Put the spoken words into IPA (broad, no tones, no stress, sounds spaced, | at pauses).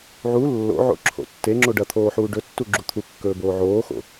ʕ u lː o̰ ʕ o̰ ǁʰ o̰ tː e ŋ͡ǁ o ɖ ɐ t̪ʰ oː ħ uː ɖ ɵ tː u ɡ͡ǁ u t̪ʰ u kː ɵː b oː ʕ oː x o̰